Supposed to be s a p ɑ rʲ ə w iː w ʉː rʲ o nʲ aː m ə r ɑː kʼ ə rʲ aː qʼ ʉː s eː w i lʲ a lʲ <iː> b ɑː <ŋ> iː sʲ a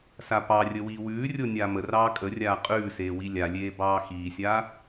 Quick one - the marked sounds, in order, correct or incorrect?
incorrect, incorrect

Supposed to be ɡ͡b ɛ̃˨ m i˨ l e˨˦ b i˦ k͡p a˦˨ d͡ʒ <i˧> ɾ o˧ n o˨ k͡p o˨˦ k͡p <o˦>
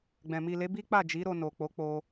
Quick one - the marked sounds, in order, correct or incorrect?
incorrect, incorrect

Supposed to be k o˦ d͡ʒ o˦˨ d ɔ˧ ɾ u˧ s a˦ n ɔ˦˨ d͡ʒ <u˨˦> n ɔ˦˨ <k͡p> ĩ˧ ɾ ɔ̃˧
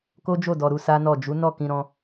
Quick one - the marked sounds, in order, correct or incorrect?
correct, incorrect

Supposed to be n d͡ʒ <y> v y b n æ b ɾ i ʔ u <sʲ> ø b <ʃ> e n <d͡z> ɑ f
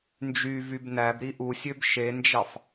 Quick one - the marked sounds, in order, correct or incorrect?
correct, correct, correct, incorrect

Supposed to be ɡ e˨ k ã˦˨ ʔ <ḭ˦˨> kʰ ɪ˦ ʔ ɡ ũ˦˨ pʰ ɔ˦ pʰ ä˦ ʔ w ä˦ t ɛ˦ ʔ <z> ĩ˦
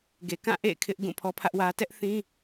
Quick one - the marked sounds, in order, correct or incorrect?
incorrect, incorrect

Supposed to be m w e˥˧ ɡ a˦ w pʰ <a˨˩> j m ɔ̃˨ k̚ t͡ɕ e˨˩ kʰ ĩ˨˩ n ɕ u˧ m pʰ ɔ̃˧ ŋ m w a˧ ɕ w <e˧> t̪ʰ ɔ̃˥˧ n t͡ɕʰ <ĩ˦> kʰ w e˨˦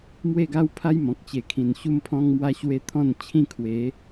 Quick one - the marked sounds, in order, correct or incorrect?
incorrect, correct, incorrect

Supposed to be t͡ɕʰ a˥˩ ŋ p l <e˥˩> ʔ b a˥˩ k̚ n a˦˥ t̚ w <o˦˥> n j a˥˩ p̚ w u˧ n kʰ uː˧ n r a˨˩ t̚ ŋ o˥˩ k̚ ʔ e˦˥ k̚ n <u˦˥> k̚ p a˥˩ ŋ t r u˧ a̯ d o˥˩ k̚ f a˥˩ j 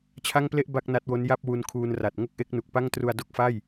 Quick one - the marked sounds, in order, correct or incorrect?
correct, correct, incorrect

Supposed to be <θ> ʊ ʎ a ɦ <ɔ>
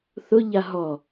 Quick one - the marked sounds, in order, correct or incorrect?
correct, correct

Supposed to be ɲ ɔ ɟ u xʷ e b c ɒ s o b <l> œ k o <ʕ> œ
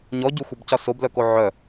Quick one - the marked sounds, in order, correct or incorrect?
correct, correct

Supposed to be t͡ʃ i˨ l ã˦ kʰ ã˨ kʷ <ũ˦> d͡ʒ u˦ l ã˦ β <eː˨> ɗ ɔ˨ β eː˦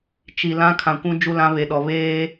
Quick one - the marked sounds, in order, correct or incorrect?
correct, incorrect

